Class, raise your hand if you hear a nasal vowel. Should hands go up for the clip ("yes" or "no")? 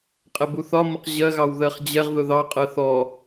no